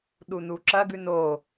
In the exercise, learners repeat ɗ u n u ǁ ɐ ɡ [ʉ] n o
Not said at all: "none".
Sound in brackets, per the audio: ʉ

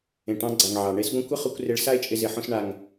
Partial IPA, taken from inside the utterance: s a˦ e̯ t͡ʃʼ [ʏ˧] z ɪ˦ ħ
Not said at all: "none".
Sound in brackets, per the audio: ɪ˧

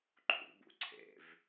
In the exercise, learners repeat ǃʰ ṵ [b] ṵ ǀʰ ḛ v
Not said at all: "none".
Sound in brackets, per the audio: b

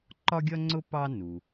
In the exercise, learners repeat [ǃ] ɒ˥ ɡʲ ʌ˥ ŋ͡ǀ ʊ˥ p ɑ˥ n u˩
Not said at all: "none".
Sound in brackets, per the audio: ǃ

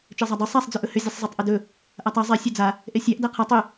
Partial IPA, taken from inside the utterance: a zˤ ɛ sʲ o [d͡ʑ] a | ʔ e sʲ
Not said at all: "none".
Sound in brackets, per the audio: d͡z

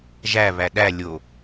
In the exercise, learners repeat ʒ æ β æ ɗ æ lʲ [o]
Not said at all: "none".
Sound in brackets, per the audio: o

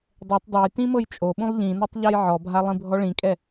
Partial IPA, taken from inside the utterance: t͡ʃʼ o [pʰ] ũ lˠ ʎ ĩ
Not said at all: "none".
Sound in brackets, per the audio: ɓ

